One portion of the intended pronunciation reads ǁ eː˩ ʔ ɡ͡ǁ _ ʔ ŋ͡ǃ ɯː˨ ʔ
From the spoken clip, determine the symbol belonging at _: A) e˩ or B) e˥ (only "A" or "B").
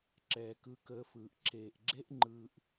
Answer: B